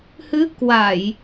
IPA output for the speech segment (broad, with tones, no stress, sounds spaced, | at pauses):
h ɨ˨˦ k w a˧˩˨ j